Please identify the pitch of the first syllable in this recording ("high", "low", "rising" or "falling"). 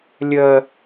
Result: high